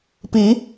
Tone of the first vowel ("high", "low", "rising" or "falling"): rising